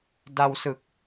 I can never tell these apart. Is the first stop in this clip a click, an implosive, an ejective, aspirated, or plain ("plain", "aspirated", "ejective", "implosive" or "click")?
plain